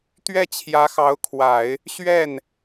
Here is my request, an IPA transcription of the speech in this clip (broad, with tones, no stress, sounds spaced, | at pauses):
t̪ ɥ ɛ˥˩ t͡ɕʰ j ä˧˥ x ɑ˧˥ ʊ̯ kʰ w a˨˩˦ ɪ̯ | ɕ ɥ ɛ˥˩ n